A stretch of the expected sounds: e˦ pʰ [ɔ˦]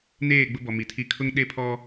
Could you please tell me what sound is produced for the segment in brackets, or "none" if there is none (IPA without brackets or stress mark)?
ɔ˦